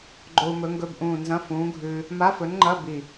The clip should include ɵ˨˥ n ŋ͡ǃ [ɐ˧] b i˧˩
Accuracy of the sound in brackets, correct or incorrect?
incorrect